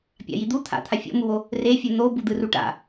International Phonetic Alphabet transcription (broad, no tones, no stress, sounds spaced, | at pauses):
pʲ a̰ j i d̪ u t̪ʰ a̰ t̪ʰ a fʲ o̰ m u w o | r e fʲ u n̪ o b u d̪ ɯ r u ʈ a̰